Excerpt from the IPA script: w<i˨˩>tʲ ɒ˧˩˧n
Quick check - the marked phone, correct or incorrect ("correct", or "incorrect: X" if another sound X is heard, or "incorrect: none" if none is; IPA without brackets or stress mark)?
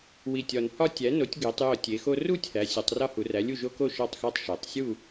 correct